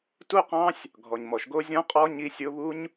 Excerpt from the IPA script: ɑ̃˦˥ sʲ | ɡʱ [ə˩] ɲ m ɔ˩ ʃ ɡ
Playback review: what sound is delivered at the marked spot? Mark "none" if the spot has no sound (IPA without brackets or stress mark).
ɔ˩